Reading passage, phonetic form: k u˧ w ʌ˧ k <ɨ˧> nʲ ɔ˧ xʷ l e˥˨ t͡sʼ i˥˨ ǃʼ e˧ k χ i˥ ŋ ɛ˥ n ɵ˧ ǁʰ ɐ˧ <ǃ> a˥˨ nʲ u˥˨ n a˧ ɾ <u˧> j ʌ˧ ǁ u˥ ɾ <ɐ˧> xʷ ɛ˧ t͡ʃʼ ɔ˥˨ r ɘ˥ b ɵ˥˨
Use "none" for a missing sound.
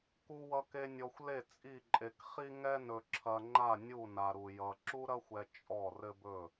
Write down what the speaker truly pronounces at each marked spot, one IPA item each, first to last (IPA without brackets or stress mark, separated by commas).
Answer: e˧, ŋ͡ǃ, u˧, ɐ˥